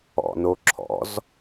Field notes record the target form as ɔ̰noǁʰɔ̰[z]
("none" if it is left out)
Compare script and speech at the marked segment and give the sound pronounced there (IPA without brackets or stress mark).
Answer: z